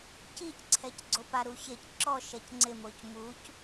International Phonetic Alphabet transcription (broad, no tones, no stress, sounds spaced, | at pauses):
c i c ǀʰ ɛ c ɡ͡ǀ o p a ɾ u ç e c ǁ ɔ ʃ ɛ c ŋ͡ǀ ɪ m o c m u c